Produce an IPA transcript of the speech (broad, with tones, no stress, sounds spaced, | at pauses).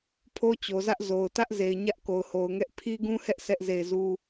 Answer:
pʰ o˦ t͡ɕ o˨ z ä˦ ʔ z o˨ ʊ̯ t ä˦ ʔ z e˨ ɪ̯ ɲ ä˦ ʔ k o˨ ʊ̯ h o˨ ʊ̯ ŋ ɛ˦ ʔ pʰ i˦ ɡ ũ˦ h ɛ˦ ʔ sʰ ɛ˦ ʔ z e˦˨ ɪ̯ z u˦